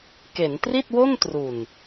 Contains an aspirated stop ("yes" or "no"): no